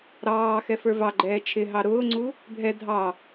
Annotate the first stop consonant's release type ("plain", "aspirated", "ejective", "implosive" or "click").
click